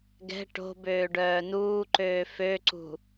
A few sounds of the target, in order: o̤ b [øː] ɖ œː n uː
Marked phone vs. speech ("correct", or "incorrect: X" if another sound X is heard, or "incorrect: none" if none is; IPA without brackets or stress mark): correct